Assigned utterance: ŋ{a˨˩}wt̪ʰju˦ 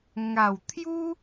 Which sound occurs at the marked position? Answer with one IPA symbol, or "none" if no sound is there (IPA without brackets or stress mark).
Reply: a˨˩